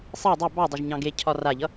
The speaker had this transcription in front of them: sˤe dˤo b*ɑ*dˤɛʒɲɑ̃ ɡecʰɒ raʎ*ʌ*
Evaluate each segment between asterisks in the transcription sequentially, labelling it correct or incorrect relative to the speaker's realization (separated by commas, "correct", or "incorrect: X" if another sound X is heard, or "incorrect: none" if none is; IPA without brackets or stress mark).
correct, correct